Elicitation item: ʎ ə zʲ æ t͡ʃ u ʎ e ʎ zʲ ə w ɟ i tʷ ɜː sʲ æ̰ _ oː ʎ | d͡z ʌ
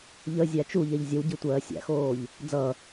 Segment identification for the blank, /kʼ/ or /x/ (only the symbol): x